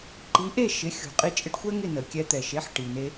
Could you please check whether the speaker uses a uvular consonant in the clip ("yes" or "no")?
yes